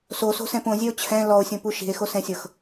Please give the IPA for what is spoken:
s o s o̤ s ɛ̃ p õ zʲ ɛ o̯ t͡ɕʰ ɛ̃ l ɔ o̯ sʲ õ p u ʃ i̤ e̯ x o s ɛ̃ sʲ ɤ x

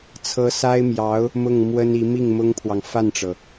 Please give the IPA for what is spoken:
t͡sʰ ɤ˧˥ s a˥ ɪ̯ m j ɑ˧˥ ʊ̯ | m ʊ˥˩ ŋ m w ə˥ n i˧˥ m i˥˩ ŋ m ʊ˥ ŋ pʰ w ɑ˨ ŋ f a˥˩ n ʈ͡ʂ ɤ˩

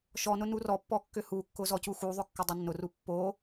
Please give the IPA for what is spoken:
ʃ ɔ n ʊ n u r ɔ pː ɔ kː ʏ h u kː ʊ z ɔ c u x u ðˤ ʊ kː ʏ dˤ ʏ nː ʊ r u pː o

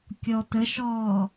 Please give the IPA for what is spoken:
kʲ ɔ t ə ʃ ɔː

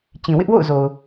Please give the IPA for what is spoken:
t͡ɕ ĩ˨ w ɪ˦ ʔ w o̰˦˨ ʊ̯ z o˨ ʊ̯

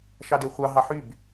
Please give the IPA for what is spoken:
ʃ ɑ d e χʷ ɑ ɦ ɑ ħ y b

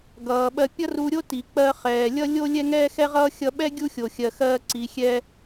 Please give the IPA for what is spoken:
ɡ ʌː˩ ɓ ɜ˧ pʲ ʌ˥ r u˧ ɾʲ o˥ t i˩ k͡p ɜ˧ χ ɛː˩ lʲ ʌ˥ lʲ o˥ lʲ ɛ˥ ŋ ɛː˥ x ɛ˥ ʁ ʌː˥ xʲ ʌ˧ ɓ ɛ˥ ɡʲ u˥ xʲ o˩ xʲ ɜ˩ x ɜː˧ ǀ i˩ xʲ ɛ˧

